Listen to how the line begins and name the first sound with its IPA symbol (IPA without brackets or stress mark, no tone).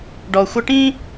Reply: ɖ